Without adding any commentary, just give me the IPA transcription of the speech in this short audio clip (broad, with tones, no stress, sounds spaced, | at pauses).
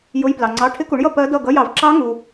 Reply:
j ʊ˧˥˧ j p l ɑ˨ ŋ͡ǀ ɑ˧˥˧ ʈʰ ɪ˦˥ k u˩˥ ɳ j ʌ˥˨ p ɜ˦˥ d ʌ˥˨ ɡ ʌ˧˥˧ j ɑ˩˥ v ǁ ɑ˦˥ ŋ u˨